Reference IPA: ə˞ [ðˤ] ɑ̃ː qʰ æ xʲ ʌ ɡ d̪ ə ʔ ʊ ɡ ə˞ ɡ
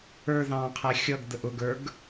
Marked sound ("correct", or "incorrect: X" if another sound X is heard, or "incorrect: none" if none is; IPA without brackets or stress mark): incorrect: ð